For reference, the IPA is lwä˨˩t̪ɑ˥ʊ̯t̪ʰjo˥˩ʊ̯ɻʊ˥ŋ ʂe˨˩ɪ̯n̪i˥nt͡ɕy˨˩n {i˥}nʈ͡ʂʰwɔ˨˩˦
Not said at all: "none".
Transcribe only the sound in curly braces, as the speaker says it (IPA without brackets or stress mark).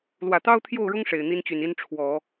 i˥